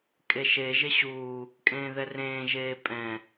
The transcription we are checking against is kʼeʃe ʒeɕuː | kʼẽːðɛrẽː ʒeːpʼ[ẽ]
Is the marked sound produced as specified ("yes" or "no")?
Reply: no